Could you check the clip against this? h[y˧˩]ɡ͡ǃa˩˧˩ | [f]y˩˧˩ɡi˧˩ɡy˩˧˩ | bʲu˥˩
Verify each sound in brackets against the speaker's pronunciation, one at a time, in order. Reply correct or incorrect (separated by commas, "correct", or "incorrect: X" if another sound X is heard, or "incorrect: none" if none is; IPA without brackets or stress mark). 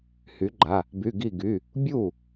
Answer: incorrect: y˩˥, incorrect: b